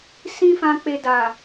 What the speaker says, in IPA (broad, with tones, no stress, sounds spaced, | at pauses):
s ĩ˦ f ã˧ k͡p e˧ d a˨